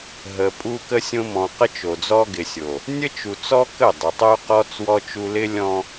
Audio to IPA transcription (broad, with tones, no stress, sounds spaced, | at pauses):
ɦ ə˨ pʼ u˦ k ə˦ sʲ õ˦ m ɔ̃˨ q ə˦ t͡ʃ o˨ d͡z ɔ˦ ɡ ɪ˨ sʲ o˨ | nʲ ə˦ t͡ʃ u˨ t͡s ɔ˦ k ə˦˨ dˤ u˨ tˤ o˦ q ɔ˦ t͡s w ɔ˦ t͡ʃ u˦ l ɪ˦ lʲ ɔ̃˦